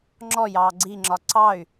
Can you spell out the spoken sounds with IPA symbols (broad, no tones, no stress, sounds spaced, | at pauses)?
ŋ͡ǁ ɔ j ɑː ɡ͡ǀ i ŋ͡ǁ ɒ ǀ ɑ y̯